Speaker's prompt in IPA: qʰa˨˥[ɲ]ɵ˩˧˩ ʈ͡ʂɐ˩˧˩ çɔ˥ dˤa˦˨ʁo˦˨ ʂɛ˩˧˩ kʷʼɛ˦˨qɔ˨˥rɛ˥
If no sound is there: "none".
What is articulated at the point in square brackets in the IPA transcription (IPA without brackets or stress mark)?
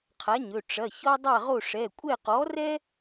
ɲ